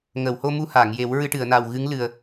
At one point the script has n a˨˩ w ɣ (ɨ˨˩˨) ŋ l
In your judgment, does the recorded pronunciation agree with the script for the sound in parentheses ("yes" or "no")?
no